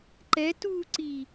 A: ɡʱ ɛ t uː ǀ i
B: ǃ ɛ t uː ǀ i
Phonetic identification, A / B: B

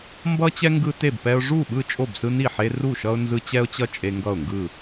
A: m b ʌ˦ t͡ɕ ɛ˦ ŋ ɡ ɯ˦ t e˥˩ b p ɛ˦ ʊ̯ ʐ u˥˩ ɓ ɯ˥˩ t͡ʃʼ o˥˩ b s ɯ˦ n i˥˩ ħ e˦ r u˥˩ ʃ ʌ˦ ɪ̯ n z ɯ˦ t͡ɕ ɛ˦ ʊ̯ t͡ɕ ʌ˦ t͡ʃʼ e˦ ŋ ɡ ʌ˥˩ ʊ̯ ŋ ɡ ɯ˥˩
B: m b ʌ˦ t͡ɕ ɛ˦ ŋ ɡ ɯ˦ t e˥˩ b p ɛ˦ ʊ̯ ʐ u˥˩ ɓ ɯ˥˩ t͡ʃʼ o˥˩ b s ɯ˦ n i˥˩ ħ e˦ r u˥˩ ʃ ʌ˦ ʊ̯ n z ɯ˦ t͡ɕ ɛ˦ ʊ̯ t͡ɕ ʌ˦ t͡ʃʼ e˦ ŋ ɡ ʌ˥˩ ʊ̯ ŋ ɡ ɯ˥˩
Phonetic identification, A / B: B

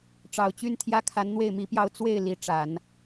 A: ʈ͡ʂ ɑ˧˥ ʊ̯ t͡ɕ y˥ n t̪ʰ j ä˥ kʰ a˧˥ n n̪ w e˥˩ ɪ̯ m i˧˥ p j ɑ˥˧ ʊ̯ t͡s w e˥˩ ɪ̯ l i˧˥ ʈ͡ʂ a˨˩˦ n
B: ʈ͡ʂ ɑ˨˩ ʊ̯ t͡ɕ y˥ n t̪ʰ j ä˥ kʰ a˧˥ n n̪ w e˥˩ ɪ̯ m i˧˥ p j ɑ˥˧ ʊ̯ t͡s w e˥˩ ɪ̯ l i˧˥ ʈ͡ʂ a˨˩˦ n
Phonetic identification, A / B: B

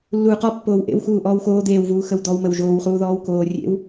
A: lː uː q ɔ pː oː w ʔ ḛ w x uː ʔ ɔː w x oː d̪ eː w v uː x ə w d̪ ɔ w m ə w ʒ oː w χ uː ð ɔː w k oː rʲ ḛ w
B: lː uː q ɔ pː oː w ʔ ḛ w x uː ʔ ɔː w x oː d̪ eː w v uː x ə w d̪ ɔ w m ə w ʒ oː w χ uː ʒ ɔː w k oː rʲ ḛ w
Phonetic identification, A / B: A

